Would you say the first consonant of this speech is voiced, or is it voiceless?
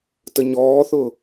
voiceless